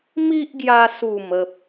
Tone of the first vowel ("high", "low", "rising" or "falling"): high